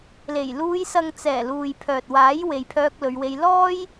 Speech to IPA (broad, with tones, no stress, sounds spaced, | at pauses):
l e˨˩ j l uː˨˧ j s ɐ˨ ŋ t͡s ɛː˨˩ l uː˨ j pʰ œː˨ t̚ w aː˨˥ j w e˨ j pʰ œː˧ k̚ l ɵ˨˧ ɥ w e˧ j l ɔː˥ j